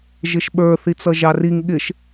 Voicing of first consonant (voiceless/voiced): voiced